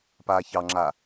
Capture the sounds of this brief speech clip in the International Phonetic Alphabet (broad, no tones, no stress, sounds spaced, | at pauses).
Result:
p aː ç ɑ ŋ͡ǁ a